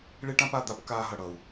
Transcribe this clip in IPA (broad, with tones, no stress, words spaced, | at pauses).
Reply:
ɭe˦ʈã˦pa˧d̪a˧p kaː˧ɦʌ˨ɽʌ˨u̯